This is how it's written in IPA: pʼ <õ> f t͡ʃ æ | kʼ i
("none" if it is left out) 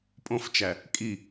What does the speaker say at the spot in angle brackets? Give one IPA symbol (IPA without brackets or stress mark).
õ